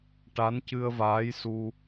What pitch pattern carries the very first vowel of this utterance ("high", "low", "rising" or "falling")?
rising